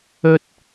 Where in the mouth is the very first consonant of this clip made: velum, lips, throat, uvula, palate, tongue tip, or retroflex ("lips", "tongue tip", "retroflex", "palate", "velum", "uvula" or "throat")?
tongue tip